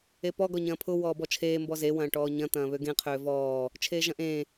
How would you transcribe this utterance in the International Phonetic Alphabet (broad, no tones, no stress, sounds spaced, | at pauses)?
e p ɔ ɡ ɔ ɲ ɐ̃ː pʰ ʊ w ɔː b ɔ t͡ʃʰ eː m b ɔ z e w ɐ̃ː ʈ ɔː ɲ ɐ̃ t̪ ɐ̃ː β ø ɡ ẽ qʰ øː v ɔː | t͡ʃʰ eː ʒ ɐ̃ ʔ ẽː